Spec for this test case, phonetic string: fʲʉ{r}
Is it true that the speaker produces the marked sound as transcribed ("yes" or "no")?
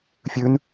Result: no